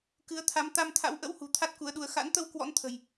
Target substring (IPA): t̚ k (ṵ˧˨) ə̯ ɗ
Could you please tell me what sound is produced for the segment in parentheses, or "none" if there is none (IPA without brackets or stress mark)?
u˨˦